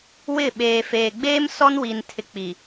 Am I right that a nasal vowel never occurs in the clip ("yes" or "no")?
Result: yes